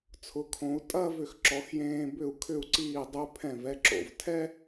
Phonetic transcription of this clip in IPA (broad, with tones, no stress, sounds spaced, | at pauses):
t͡sʰ ʊ˩˧ kʰ õ˩˧ u̯ tʼ ɐ˥˧ v ʏ˧˩ x ǁ ɔ˩˧ x j ẽː˧ b ʏ˧˩ u̯ kʰ ʏ˧˩ u̯ ǀ iː˧˩ dˤ ø˧ pʰ ɛ̃˧˩ v ɛ˧ ǁ o̰˧˩ v tʰ ɛ˥